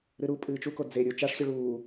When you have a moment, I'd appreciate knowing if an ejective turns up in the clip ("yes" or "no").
yes